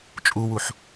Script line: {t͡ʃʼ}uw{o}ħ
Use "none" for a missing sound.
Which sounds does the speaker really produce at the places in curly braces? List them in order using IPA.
t͡ʃʼ, u

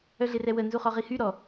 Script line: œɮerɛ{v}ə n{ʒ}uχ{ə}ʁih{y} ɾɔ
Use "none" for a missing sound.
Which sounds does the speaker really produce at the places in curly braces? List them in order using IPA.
w, z, ɔ, y

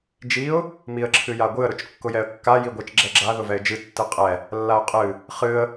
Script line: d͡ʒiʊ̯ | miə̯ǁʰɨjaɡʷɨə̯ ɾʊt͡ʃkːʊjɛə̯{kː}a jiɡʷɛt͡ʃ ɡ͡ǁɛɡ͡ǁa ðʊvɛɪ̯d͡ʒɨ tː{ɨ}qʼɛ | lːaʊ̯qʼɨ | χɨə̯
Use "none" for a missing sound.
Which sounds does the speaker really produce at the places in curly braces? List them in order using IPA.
kː, ɨ

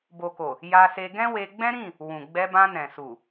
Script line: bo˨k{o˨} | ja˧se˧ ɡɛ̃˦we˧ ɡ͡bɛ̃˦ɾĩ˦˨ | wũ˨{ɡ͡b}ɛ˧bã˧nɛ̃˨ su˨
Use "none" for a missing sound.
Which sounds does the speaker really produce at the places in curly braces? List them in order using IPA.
o˨, ɡ͡b

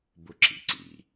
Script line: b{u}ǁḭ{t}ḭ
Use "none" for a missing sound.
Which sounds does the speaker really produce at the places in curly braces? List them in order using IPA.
u, ǀ

